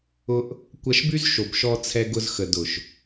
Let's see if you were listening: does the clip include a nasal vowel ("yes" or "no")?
no